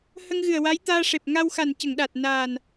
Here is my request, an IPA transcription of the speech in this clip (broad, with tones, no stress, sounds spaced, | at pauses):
h ə˧ ŋ ɣ ɨ˨˩ ə̯ w a˧˥ j t̪ aː˧ ʂ e˨˩ p̚ ŋ a˧ w x a˨˩ n c ə˨˩˨ ŋ ɗ a˨˩ t̚ n aː˨˩ n